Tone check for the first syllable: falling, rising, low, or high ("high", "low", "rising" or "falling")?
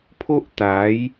high